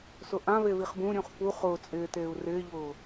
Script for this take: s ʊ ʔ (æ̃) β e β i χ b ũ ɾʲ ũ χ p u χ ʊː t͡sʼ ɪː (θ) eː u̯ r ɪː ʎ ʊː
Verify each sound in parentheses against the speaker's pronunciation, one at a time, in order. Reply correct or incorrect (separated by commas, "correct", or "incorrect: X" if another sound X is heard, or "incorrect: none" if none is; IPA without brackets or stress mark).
incorrect: ã, incorrect: t